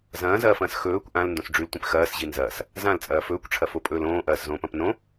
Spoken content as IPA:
zɐ̃ːzɐːfɐ̃ːs xɵːkʷ ʔãlndõs ɖ͡ʐʉltʷĩp xɐːsʑi nzɐːs | zãlt͡sʼɐː fɵːkʷʈ͡ʂʰɐfopʼɵːl õːʔɐːszõːpɐ̃p nõ

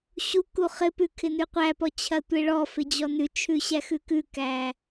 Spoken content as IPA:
ɕu kuχɪpʉ kʰɪnʉqʷæpɔ t͡ɕʰɐtʷeɭɔfɪ d͡ʑɔnʉt͡ʃʰʉ ɕæxʉkʉkæ

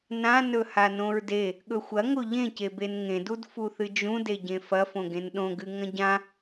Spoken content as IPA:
nãnɵ hanõɹde | ɠɵxʷɐ ŋoʎẽce benŋẽdud fuθɨd͡ʒũde ɟẽfɐfõɡ ẽnɗõɡɨ ŋɐ̃ɟã

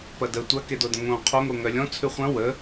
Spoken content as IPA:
pɐdə tʷɐkedodə̃ ŋõ qʰoŋo ŋœlʲɔ̃ t͡sʰʉχʷɐ̃ wə

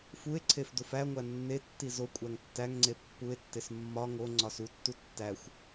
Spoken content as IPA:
fue̯ǀʰef dofæŋʷæ nːetːi zokʷʼæŋ tːæŋŋ͡ǀe pːue̯tːes mːɒ ŋo ŋ͡ǀɒsutːu tːæxʷ

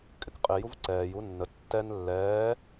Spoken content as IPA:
kʼɪkqʼɪ juvǀɛːj unːə tːɛn lːɛː

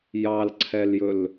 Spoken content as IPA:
jɑlǀʰɛljɵl

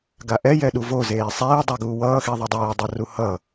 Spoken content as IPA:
ɡaʔɛ jɛɗuvo zeːsˤeː dˤaɡuːwʌː xiðˤɛdˤeː dˤʌruhʌ

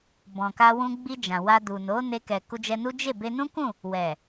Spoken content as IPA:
bɔ̃˨ka˧wũ˧ ɡ͡bi˧d͡ʒã˨ wa˧du˨ no˨˦ne˧ kɛ˨ku˧d͡ʒɛ˧nu˦ d͡ʒe˦˨ be˧nũ˦kũ˦˨ | wɛ˨

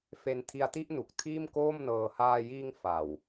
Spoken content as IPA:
fe˧ntʰi˧a̯ti˥˩ʔnu˨˩k̚ tʰiː˥˩mkoː˥˩mnɤː˧ haː˧jiː˧ŋ fa˨˩w

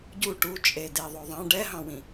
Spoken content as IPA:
ɟu ʈut͡ʃʼe deðˤoðˤɑ̃ ɖɛɦɑ̃wĩ

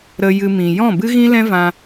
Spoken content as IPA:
ɾə˧ jɨ˧mĩ˨ jɔ̃˦˨bɨ˦ɣĩ˦ lɛ̃˦vã˧

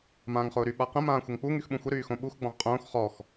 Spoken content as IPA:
mãːŋχʊːɾy ɓaqə̃ mãːxʷəŋk͡pu ŋyxɓũxʷə ɾyːxõɓux ɡ͡bɔ̃ʁqʼõːx χɔx

